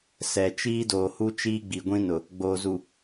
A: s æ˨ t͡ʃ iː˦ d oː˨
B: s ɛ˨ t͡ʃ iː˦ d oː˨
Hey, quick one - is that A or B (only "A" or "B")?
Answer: B